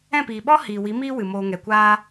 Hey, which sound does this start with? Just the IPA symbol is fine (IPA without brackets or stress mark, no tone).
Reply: ɛ̃